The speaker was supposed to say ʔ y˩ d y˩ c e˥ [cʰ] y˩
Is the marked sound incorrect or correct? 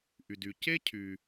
correct